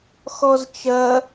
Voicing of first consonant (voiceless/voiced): voiceless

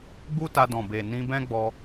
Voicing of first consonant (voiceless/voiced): voiced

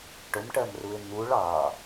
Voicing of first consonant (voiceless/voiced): voiceless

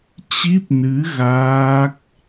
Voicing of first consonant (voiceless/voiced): voiceless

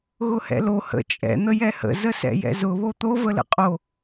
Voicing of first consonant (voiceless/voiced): voiced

